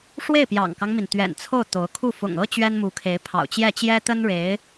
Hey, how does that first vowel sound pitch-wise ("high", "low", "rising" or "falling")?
falling